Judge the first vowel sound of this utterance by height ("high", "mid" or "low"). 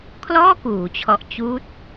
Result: mid